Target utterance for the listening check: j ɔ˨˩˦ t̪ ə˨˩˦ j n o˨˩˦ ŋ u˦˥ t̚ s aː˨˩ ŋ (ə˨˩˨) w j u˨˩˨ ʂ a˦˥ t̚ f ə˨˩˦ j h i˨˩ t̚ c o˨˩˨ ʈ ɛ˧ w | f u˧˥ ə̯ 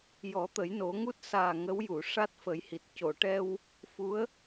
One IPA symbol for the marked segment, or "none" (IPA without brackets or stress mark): ə˧˥